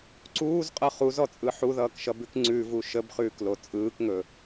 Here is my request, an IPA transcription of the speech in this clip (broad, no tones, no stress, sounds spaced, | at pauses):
ǀ uː z qʼ ʌ χ u z ɔ t͡sʼ ɯ ħ u ð ʌː k ʃ ʌ b ʉ k ŋ͡ǀ ʉ v u ʃ ə b χ ʉː k l o t͡sʼ ɯː k ŋ ɵ